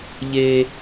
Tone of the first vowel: high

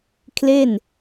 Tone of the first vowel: falling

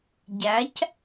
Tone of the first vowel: rising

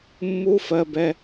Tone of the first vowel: high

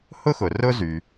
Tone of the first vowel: high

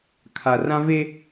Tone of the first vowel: low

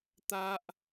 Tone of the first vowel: high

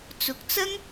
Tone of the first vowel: rising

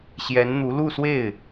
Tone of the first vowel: rising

